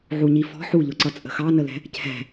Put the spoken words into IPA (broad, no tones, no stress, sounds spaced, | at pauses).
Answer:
ʕ u ɲ i f ɔ̤ ħ u ʎ ʊ ǀ ʌ t͡sʼ ə̤ x ɑ n ə l ɛ̤ | cʰ ɛ̤